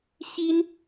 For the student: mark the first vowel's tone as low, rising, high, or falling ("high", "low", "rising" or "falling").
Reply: high